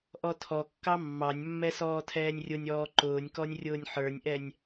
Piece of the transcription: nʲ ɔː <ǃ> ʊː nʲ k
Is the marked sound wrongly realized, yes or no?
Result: no